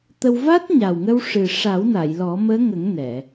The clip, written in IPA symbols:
t̪ ə˧ w v a˦˥ t̚ ɲ a˨˩ w ŋ ə˧ w ʂ ɨ˨˩ ʂ a˨˩˦ w n a˨˩˨ j l ɔ˨˩˦ m əː˧˥ ŋ ə˨˩˦ ŋ n ɛ˨˩˨

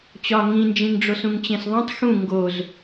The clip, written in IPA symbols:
t͡ɕ ɒ ŋ ĩ n d͡ʒ ĩ ŋ ɖ͡ʐ o s ũ ŋ t͡ɕ ẽ s ðˤ õ tˤ x ũ ŋ ɡ o z

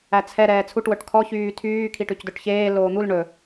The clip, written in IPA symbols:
æ t͡sʰ ɛ ɾ ɛː t͡sʰ u ʈ w œ ʈ kʰ ɔ ç yː tʰ yː kʰ i ʈ ʉ c d œ ʈ ç eː l oː n̪ u l ɳ ɵ

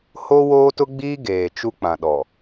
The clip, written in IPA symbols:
h o˦ w oː˦ t ʊ˦ ɡ͡b iː˦ ɡ eː˨ t͡ʃ u˦ k͡p ã˨ ɗ ɔ˨

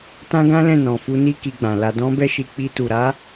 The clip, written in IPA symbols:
t ã˦ ɡ ã˦ l ɛ̃˦˨ n ɔ̃˨ f u˧ n i˦ k i˧ ɡ͡b ã˨ l a˨ d ɔ̃˧ b ɛ˧ ʃ i˨ k͡p i˧ t u˨ ɾ a˨˦

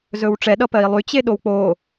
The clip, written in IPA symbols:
z ɵ w ʈ͡ʂ ɛ ɗ ʌ p ɜ i̯ lˠ y t͡ɕ e ɗ o w k͡p o

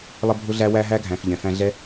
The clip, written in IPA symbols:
lˠ ə˧ bʱ ʊ˦ ɮ æ˦ w æ˧ ɦ æ˧ ɡʱ æ̃˨ f ʎ ɛ̃˨ f æ̃˧ ɮ ɛ˦

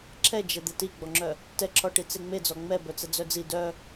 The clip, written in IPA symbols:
ǁʰ ɛ d͡ʒ ɛ d̪ ɛ t i ɡ͡b ɔ ŋ͡ǁ œ | t ɛ ǁʰ ɔ ʈ i t͡s e ŋ͡m e d͡z ɔ ŋ͡m ɛ b œ t͡s ɛ d͡z œ d͡z i d œ

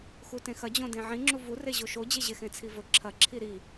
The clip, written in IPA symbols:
x u t ẽ x ɐ d͡ʑ õ d ẽ ʕ ĩ ŋ͡ǁ u v u r e ʑ o ʃ o d͡ʑ e ʑ e x ẽ t͡sʰ i v ɵ ǁʰ ɐ ǁʰ i ɾ i

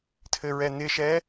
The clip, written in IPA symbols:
tʰ ɘ ɹ ɛ n̪ ɪ ʃ ɛ

